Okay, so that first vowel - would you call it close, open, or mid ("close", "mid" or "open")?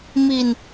close